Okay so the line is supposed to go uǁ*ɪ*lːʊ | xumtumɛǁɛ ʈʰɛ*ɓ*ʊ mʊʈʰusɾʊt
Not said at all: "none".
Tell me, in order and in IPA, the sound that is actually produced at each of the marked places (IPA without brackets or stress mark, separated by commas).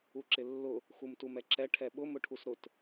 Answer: ɪ, ɓ